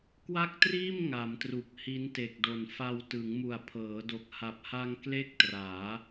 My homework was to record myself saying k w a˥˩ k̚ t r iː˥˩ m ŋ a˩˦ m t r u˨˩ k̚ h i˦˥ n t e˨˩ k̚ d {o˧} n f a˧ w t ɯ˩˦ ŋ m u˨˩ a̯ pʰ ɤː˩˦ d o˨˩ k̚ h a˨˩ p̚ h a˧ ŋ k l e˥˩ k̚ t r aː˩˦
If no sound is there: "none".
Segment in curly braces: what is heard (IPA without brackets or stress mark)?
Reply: o˨˩